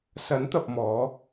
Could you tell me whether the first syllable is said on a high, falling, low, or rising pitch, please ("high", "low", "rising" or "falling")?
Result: rising